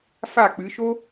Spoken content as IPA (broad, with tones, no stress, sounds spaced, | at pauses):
f a˦˨ k͡p ɨ˨˦ ʃ o˥